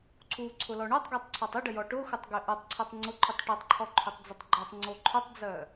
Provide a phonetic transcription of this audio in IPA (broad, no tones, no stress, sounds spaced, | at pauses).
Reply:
ǀʰ u ǀʰ ʊ l ɔ ɳ ø tˤ ɡ ø tˤ ǀʰ ɔ tˤ ə ɖ ə j ɔ ʈ ʊ x ʊ tˤ ɡ ø ʔ u tˤ ǀʰ o tˤ ŋ͡ǀ ʊ ǃʰ u tˤ ʈ o tˤ ǃʰ ɔ ǃʰ ø tˤ d͡z ʊ tˤ ɡ͡ǃ ɔ tˤ ŋ͡ǀ o ǃʰ ʊ tˤ d͡z œ